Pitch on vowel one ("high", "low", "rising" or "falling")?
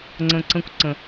low